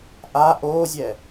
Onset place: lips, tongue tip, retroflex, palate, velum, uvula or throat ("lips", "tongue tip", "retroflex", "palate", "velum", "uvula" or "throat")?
throat